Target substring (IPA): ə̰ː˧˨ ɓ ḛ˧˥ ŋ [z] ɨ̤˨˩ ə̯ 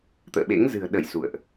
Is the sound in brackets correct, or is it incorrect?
correct